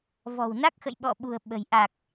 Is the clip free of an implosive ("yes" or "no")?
no